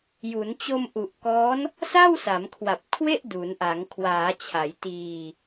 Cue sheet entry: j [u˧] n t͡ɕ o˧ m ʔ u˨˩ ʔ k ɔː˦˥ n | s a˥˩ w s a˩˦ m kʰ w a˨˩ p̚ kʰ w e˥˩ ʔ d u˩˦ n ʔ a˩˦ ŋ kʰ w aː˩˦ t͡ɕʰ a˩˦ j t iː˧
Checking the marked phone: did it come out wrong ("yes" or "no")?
yes